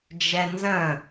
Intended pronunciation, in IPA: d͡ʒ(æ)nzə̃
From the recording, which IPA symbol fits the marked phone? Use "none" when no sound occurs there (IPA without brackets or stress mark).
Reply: ɛ